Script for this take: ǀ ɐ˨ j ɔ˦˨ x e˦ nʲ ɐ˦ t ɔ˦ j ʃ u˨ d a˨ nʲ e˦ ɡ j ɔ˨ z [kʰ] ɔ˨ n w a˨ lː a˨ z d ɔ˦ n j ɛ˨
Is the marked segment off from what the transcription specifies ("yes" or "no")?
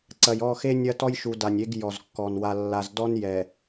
yes